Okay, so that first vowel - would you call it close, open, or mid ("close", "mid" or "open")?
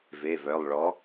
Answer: mid